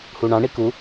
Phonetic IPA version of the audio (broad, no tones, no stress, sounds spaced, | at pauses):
h u ɳ ɑ̃ ɳ i k u